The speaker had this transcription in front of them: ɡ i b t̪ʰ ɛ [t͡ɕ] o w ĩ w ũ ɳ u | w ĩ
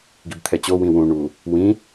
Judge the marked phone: correct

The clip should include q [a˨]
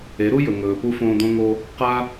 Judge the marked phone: incorrect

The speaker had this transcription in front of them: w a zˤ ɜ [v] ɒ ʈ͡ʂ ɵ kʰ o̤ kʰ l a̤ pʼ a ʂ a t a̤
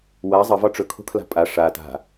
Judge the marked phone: correct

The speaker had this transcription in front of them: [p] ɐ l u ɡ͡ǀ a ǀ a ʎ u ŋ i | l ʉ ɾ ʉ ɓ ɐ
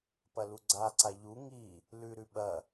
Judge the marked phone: correct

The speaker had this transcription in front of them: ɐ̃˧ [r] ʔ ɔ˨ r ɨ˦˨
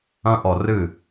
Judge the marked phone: incorrect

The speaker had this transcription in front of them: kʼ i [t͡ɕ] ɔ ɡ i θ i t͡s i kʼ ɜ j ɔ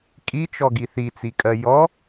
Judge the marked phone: incorrect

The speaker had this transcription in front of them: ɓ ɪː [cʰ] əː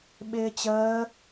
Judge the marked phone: incorrect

